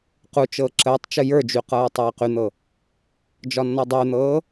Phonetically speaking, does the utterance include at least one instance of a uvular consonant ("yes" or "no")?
yes